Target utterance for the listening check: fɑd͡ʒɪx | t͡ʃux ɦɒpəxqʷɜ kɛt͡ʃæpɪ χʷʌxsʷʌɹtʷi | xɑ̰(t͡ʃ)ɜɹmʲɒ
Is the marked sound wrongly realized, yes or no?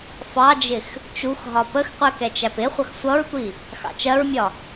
no